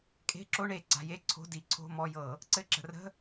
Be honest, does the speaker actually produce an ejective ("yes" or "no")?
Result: yes